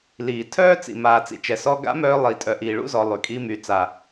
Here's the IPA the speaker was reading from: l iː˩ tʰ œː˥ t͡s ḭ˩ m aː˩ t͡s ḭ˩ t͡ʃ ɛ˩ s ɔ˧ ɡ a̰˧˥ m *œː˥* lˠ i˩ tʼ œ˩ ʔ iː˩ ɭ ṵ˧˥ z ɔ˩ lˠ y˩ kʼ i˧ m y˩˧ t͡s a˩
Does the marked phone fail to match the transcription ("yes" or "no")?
yes